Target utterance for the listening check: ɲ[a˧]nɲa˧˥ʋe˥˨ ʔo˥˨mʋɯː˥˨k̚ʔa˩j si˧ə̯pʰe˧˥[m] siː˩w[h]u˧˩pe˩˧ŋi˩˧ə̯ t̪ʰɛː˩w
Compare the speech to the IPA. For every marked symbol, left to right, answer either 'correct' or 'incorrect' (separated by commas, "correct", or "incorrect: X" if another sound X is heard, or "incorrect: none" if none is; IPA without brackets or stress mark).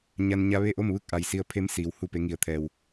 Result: correct, correct, correct